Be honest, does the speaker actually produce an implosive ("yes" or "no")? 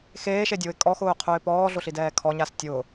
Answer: no